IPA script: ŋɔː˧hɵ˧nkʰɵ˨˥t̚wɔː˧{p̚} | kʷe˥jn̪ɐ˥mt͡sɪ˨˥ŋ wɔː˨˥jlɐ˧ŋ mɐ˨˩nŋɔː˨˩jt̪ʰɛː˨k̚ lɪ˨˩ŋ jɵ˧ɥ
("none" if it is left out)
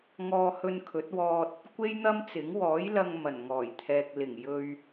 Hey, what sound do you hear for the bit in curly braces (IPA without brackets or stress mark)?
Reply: t̚